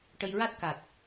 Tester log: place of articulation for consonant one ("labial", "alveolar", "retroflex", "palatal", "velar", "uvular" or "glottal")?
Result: retroflex